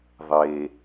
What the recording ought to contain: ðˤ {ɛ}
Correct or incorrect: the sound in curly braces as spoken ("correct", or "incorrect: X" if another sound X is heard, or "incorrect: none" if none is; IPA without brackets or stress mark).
incorrect: e